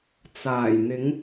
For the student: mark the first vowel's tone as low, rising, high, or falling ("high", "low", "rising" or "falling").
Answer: low